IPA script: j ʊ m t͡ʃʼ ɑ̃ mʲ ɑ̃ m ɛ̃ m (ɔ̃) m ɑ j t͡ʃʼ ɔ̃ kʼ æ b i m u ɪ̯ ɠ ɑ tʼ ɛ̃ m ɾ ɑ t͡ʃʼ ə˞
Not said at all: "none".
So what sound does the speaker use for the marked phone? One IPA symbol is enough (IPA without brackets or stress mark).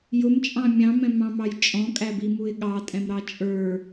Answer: ɑ̃